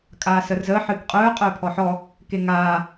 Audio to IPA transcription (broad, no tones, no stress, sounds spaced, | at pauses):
kʼ aː s ə r z əː ħ ɨː k qʼ œː qʼ œː pʰ ɔ ħ ɔ | k e ŋ aː